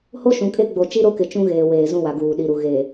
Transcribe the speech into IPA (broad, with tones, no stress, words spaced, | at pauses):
ho˦ʃũ˨kʼe˦ɡ͡bo˨ t͡ʃi˦ɾo˦kɪ˨ t͡ʃũ˦ɣeː˨weː˨ zũ˦wa˨ɡuː˨ ɗi˨ɾu˨ ɣe˨